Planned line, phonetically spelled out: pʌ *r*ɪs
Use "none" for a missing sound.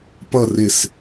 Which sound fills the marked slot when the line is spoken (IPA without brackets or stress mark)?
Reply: r